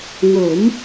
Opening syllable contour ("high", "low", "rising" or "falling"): rising